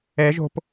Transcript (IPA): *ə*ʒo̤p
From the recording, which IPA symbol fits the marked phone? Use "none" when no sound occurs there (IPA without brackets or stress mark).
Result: ɛ